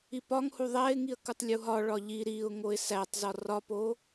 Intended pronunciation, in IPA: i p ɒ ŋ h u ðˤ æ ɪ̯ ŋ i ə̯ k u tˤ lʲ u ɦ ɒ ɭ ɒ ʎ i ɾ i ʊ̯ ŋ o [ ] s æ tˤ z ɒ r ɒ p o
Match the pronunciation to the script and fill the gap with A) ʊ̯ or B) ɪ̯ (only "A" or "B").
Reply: B